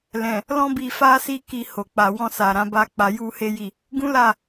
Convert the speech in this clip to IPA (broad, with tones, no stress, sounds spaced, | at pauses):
l ɛ̃˨ | l ɔ̃˦ b i˧ f a˦ s i˦ k i˧ h o˨ k͡p a˨ w ɔ̃˧ s a˨ ɾ ã˧ b a˦ k͡p a˧ j u˦ h e˦ j i˦˨ | ɡ ũ˦ l a˦˨